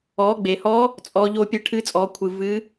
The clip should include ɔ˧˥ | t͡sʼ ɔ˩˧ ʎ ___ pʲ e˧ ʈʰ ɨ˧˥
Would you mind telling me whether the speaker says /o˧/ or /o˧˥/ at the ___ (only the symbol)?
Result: o˧